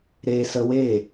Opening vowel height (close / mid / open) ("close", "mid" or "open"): mid